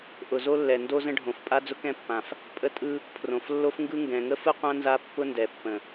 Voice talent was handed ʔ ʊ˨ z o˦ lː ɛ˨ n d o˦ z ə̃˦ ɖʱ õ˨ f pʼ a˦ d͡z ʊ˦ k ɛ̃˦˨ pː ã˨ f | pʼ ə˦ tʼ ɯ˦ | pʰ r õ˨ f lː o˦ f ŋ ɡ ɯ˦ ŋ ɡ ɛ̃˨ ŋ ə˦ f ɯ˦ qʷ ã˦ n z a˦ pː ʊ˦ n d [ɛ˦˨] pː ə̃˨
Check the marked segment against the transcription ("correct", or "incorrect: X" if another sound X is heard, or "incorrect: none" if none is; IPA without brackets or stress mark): incorrect: ɛ˨